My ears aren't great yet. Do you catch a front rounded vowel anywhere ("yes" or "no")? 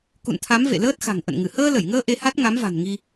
no